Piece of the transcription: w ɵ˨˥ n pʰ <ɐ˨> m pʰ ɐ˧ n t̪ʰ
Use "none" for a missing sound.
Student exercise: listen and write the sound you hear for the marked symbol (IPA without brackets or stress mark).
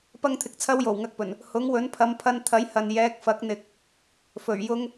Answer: ɐ˨˧